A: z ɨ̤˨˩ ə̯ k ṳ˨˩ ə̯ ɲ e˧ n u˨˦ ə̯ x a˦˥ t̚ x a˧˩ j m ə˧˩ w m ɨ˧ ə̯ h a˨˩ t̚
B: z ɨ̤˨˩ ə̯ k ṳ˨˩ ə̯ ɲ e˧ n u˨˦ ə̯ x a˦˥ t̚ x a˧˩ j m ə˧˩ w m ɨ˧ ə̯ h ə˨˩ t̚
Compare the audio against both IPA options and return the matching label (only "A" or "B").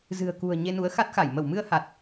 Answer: A